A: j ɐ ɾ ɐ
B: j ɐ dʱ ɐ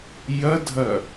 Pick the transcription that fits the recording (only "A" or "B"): B